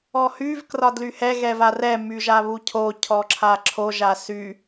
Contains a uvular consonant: no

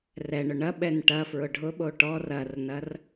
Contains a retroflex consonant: yes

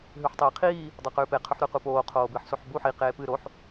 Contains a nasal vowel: no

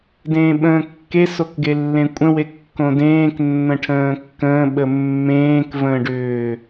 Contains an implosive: yes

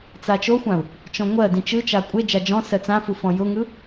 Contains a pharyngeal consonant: no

